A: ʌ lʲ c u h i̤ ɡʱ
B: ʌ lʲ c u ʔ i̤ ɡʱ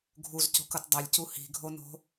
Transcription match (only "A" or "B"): A